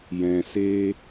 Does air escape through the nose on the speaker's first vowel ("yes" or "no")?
yes